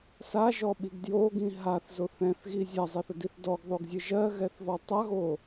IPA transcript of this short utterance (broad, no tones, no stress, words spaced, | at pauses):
saʒɔɓiɡ djoɡĩ ɦaθzo θɛ̃θɣi zʲazˤɛθədiθ dɔɡðˤoɡzʲɨ ʒɜɣɛθvɔ tˤaɣo